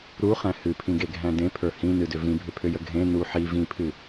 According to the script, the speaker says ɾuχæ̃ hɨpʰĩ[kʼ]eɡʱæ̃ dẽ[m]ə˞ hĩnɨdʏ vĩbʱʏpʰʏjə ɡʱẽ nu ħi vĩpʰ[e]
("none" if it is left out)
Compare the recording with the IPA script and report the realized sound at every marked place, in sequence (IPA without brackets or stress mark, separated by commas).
ɡ, pʰ, ɨ